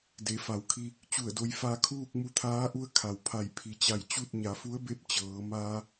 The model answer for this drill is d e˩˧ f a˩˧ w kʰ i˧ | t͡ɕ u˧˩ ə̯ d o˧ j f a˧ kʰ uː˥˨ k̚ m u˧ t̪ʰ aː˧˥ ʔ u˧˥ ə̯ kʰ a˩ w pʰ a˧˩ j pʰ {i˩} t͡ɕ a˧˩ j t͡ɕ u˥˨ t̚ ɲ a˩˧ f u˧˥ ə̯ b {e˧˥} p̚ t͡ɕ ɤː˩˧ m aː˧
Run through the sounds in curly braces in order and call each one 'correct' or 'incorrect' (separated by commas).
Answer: correct, correct